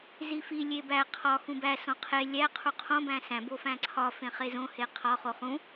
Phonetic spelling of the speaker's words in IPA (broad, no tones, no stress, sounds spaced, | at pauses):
z i f i lʲ e b æ qʰ ɒ x ũ b æ s õ qʰ e lʲ æ qʰ u qʰ õ b æ̃ s æ̃ b o f æ̃ ǀʰ ɒ f ẽ χ e z õ h e qʰ ɒ χ o χ ũ